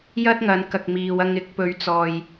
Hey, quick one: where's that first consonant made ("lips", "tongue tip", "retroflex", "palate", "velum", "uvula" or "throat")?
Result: palate